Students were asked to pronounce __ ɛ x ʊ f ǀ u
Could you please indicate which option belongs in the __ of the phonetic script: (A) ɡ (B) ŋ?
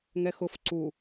B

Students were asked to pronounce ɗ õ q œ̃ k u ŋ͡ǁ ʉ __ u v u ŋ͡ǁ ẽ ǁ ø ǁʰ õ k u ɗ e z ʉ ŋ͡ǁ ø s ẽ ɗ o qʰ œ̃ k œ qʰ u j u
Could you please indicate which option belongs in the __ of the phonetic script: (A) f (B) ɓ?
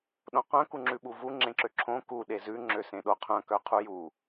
B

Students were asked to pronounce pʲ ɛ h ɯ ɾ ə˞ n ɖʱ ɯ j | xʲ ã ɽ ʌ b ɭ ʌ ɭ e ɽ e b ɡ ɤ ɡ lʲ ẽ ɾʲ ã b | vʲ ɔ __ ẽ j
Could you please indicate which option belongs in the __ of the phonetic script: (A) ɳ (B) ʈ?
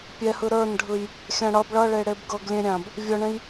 A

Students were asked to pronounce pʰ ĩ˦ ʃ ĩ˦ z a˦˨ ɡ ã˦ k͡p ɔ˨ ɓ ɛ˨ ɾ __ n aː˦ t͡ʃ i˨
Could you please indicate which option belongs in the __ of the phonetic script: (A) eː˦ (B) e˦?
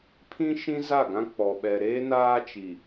A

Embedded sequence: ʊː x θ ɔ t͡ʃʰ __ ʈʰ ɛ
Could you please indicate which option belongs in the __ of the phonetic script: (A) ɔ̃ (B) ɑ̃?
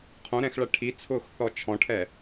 A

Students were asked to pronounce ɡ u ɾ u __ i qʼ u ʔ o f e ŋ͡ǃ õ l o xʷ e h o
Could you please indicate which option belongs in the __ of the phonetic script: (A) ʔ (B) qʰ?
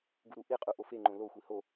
A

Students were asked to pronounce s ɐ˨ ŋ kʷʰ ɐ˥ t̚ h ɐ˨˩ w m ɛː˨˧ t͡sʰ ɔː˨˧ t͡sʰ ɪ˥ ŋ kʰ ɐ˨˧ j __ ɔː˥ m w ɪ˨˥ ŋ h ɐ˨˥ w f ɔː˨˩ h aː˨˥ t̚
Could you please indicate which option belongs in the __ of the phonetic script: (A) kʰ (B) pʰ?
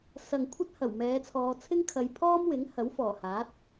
B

